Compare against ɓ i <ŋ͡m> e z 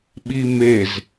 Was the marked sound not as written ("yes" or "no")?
yes